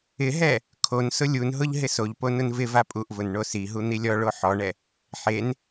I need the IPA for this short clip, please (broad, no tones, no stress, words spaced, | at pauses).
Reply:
ɪɦɛ | kʰonsʊ lʲunɦʊʎ ɦɪsoʎpo nʊnvɪva pʼuʔvʊn ɳosiɦu n̪ilʲɔɭo ħɔɳɛ | ħen